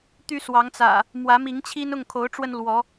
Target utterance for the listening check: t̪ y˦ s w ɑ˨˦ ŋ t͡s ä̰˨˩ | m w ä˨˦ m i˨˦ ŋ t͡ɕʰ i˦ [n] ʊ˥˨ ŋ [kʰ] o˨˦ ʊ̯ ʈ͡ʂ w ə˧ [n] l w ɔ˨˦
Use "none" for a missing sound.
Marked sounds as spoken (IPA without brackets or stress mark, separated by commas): n, kʰ, n